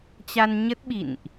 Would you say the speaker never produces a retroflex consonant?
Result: yes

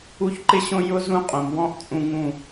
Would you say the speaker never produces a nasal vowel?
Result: no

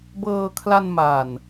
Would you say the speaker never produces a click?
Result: yes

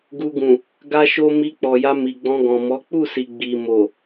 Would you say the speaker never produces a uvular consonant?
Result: yes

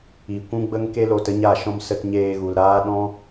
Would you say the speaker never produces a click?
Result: yes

